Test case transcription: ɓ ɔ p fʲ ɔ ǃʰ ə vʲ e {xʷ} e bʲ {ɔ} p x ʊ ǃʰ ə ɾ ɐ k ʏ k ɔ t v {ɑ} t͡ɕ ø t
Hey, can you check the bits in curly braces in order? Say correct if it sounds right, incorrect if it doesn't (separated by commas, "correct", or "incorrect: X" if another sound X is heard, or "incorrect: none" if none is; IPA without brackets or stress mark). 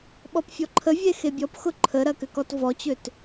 incorrect: x, correct, incorrect: ɔ